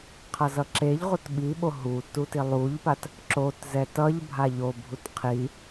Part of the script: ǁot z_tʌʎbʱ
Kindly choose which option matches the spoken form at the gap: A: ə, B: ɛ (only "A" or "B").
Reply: B